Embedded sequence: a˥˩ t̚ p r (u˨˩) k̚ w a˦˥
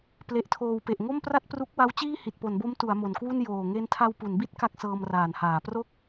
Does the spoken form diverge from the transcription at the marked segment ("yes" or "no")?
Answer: yes